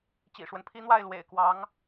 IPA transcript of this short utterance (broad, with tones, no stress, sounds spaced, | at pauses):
t͡ɕ ḭ˨˩ ʂ w ə˦ n pʰ i˥ n̪ w a˥˩ ɪ̯ l w ḛ˨˩ ɪ̯ k w ɑ˧˥ ŋ